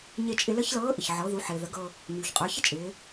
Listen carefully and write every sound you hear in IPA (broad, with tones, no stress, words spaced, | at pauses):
ɲe˧t͡ʃʼɪ˧lə˥ç lɤː˧˥ʔɪ˩çʕɤ˩˧ ðu˩˧ħɪː˩ðə˩˧ ɡɤ˧ | ɲyː˩çqʼə˞˩˧çɪ˥t͡ʃʼɪː˩˧